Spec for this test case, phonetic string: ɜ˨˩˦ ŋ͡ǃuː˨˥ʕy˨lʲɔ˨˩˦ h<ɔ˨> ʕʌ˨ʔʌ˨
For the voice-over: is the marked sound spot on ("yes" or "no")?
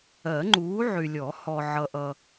yes